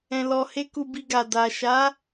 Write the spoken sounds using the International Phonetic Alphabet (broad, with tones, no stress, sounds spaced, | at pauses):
ɛ̃˧ l ɔ˧ h e˦ k u˧ b i˧ ɡ a˨ d a˨ ʃ a˨˦